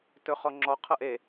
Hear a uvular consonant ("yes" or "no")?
yes